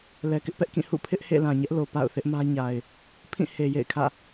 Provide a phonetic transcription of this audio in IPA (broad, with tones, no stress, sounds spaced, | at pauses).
l ɛ˨ k ɪ˦ ʔ p ɛ˦ ʔ k ĩ˦˨ h ṵ˦˨ pʰ ɪ˦ ʔ h ḛ˦˨ l ã˨ ɲ ɛ˦ ʔ l o˨ p a̰˦˨ ʊ̯ θ ɪ˦ ʔ m ä˦ ɲ a˨ ɪ̯ | pʰ ĩ˦˨ h e˨ j ḛ˦˨ ɪ̯ kʰ ä̰˦˨